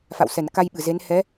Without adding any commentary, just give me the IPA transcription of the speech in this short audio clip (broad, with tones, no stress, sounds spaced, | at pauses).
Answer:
f a̰˧˨ w s ɛ˧˩ n k a˧ j ɓ ɨ˧˩ z e˨˦ n h ɛ˨˦